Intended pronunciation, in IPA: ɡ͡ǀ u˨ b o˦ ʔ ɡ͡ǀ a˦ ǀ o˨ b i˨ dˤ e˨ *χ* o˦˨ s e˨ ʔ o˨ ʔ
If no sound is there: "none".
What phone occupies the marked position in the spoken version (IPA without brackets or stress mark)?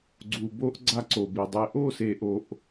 ʔ